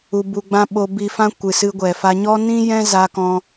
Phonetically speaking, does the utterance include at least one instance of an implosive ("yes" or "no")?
yes